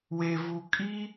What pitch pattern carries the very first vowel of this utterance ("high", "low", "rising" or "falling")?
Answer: low